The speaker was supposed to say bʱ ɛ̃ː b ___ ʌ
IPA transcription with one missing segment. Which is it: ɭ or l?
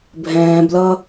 l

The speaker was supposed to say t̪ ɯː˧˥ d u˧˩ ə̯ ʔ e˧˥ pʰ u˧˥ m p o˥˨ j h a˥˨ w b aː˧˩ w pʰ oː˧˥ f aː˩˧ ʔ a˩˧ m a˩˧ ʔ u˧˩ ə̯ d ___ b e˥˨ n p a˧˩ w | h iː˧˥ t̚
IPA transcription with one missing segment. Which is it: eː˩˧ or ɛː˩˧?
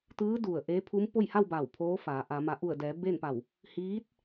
ɛː˩˧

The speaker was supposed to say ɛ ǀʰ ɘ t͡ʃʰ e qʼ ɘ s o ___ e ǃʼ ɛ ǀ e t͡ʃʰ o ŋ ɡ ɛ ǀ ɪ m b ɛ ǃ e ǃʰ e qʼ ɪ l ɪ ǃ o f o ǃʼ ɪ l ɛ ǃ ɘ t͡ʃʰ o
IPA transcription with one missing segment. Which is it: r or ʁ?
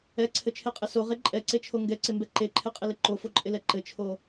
ʁ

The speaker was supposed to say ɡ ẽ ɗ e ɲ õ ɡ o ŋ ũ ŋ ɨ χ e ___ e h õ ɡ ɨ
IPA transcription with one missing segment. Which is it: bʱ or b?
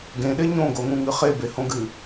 b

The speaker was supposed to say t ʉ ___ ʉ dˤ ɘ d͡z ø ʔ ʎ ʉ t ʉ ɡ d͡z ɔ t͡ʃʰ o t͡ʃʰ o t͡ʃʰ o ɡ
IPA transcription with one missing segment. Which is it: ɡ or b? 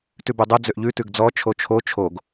b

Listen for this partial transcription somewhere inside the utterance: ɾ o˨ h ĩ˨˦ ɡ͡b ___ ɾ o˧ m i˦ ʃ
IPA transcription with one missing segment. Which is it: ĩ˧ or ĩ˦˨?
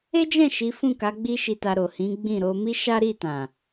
ĩ˦˨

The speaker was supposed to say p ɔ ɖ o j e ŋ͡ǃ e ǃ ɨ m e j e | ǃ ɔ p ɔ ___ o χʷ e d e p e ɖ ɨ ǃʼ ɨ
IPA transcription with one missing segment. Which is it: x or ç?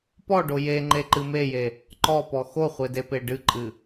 x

